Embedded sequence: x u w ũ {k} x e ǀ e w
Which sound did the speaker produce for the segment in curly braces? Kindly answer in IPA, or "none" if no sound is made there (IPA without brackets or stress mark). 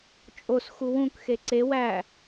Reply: k